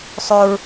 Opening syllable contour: high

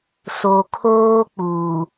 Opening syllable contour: low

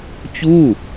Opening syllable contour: falling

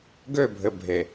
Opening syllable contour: falling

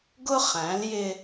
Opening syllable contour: high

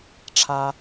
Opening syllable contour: high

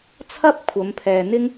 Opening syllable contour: high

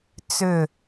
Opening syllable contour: falling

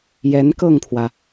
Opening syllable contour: rising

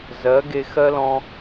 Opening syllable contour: rising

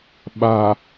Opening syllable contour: low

